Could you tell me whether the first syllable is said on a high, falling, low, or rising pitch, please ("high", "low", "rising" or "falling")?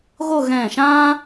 falling